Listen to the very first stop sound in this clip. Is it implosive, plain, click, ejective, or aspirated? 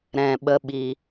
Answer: implosive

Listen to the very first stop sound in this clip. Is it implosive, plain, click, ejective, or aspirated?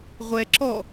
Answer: click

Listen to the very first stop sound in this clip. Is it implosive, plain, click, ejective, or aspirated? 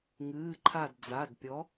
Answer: click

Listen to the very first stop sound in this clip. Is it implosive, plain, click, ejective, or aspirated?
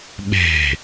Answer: implosive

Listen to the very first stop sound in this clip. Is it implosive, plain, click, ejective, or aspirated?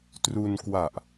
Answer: plain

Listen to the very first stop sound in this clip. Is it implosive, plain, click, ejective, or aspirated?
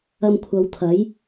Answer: aspirated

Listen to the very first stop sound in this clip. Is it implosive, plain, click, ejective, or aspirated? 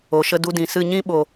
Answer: plain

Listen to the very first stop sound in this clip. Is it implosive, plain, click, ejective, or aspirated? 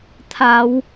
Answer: aspirated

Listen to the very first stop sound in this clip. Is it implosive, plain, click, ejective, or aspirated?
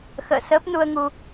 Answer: plain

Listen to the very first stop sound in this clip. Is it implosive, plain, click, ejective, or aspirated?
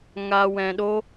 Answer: implosive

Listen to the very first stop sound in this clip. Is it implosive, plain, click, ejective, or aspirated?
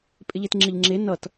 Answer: ejective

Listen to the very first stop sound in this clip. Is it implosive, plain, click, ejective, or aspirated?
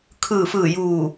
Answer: aspirated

